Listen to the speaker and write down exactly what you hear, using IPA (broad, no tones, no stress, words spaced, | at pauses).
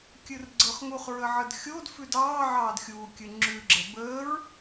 kʲɨrɡ͡ǀɤχŋuχ ɹəʕədxʲod fʉdɑː ʕɑːdxʲuː kʲɨŋ͡ǁʉ ɡ͡ǁɛbəːɹ